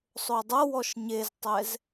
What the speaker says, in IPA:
sˤ o dˤ ɤ w ɔ ʃ ɲ e z tˤ ɛ z

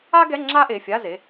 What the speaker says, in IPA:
a˥ ɡ ɛ˧˥˧ ŋ͡ǁ a˥ ʔ e˩˧˩ fʲ a˧˥˧ z e˩˧˩

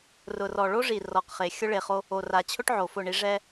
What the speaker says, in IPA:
r ʊ˨ r ɔ˨ ɭ o˦ ʐ i˨ r ɔ˨ q χ e˨ xʲ ʊ˦ ɭ e˨ χ o˦ | o˨ r a˨ t͡ɕʰ ʊ˦ ʈ ʕ o˨ f ʊ˦˨ ɳ i˦ ʐ ɛ˦

